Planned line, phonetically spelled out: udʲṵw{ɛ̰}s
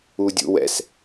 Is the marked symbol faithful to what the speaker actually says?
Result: yes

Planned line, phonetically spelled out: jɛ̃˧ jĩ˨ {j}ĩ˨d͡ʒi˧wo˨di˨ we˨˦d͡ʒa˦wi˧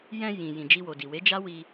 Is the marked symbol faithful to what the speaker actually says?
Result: yes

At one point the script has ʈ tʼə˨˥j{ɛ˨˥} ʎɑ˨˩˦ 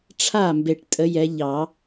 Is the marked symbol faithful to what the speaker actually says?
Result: yes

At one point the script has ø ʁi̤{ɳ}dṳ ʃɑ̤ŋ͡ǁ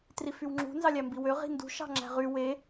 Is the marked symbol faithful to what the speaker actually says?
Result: no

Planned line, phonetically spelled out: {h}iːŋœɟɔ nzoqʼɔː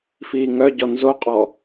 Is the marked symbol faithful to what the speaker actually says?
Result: no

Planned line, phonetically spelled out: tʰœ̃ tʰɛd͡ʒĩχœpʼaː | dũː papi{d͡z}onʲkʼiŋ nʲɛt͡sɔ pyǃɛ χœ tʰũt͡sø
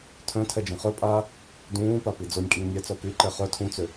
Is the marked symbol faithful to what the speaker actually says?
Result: yes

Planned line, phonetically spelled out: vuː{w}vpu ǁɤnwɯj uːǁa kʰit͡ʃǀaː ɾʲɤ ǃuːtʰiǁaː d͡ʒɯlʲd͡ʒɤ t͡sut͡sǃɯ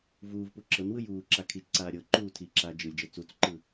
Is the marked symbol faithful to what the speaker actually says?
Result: no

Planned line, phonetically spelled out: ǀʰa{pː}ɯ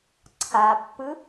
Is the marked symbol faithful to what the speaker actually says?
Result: yes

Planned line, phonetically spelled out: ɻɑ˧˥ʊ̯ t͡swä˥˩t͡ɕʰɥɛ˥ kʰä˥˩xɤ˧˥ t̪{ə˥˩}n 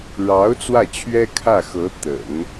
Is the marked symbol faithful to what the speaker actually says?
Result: no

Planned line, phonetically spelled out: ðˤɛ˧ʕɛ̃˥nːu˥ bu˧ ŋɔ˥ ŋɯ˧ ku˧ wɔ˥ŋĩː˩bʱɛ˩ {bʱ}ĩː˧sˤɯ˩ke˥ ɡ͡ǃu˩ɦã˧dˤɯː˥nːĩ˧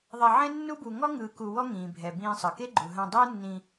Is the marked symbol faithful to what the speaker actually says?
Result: no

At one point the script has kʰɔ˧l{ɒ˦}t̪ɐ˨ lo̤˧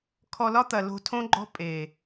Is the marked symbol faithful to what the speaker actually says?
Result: yes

